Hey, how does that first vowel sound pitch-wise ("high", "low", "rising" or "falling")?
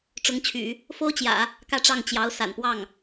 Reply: rising